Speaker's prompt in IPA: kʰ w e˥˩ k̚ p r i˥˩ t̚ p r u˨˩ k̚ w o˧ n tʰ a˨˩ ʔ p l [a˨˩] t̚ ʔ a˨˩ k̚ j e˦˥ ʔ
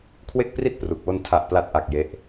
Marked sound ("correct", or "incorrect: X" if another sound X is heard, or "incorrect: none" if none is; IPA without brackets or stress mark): correct